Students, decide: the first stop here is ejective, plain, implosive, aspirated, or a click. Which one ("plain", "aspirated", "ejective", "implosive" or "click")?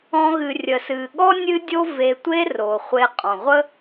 implosive